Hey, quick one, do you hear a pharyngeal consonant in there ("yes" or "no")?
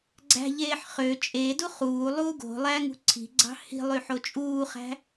yes